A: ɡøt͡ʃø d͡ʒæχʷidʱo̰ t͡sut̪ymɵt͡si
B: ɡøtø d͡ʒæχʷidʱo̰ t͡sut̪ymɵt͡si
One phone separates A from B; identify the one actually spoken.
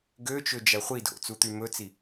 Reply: A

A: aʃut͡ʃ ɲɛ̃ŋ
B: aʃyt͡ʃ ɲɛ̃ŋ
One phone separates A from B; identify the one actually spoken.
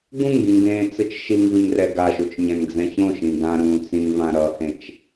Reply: A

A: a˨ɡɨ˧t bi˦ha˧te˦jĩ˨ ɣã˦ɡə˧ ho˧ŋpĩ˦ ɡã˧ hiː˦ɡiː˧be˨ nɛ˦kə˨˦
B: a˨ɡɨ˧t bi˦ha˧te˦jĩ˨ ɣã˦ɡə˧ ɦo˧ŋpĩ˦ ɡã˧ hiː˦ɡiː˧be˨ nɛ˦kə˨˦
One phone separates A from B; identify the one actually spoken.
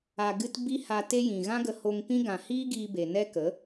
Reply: A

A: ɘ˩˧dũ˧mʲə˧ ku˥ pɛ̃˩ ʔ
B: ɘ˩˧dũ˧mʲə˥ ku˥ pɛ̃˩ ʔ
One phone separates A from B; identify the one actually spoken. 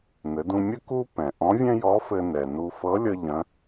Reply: B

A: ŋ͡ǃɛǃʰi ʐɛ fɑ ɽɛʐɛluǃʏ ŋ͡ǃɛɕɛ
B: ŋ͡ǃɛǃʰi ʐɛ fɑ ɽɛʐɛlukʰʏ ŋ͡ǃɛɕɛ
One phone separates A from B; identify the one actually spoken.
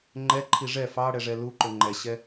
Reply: A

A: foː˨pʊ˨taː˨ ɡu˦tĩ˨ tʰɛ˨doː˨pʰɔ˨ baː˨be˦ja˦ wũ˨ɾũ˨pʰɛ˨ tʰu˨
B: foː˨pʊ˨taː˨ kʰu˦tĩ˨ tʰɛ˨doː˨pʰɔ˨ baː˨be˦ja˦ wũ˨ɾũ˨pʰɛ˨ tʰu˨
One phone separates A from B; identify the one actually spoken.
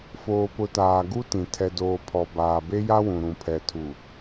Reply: A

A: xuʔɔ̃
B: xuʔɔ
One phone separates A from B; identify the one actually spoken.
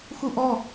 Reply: B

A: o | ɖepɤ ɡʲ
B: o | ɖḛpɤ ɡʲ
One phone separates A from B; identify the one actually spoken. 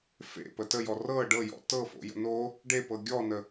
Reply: A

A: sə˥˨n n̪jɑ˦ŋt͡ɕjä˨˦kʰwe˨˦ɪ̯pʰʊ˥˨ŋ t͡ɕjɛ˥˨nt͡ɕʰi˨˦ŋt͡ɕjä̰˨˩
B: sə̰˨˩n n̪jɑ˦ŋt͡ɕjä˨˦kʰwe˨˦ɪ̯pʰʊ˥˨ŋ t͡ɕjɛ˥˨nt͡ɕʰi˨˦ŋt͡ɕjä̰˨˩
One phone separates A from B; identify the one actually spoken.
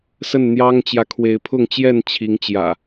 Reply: A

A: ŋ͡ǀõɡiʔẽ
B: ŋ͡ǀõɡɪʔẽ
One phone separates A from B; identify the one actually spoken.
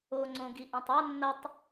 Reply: A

